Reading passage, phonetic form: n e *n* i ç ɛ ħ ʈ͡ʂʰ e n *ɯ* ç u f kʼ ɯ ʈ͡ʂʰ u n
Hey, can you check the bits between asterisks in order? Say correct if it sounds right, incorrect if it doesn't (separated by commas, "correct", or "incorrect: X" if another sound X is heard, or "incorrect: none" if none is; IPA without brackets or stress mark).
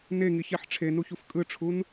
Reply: incorrect: ŋ, incorrect: u